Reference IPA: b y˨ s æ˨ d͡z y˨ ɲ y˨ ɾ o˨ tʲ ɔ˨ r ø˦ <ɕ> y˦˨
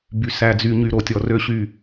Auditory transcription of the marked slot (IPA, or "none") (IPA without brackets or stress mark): ɕ